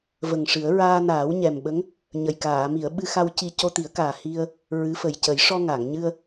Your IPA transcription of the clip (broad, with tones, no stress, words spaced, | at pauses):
və˨˩ŋʂɨ˨˩˦ə̯ ɹaː˧naː˨˩˦w ɲɛ˨˩mɓə˧˥ŋ | ɲə˨˩j kaː˨˩˨mi˨˩˨ə̯ɓɨ˧xa˧w ci˧ co˧t̪i˨˩˦ə̯kaː˨˩ hi˧ə̯ | ɹɨ˧˥fə˨˩j cə˨˩˦j ʂɔ˧ŋa˨˩˨ŋɲɨ˧ə̯